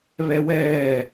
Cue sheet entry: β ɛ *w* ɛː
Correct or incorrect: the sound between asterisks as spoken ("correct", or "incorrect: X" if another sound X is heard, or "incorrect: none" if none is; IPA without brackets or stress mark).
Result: correct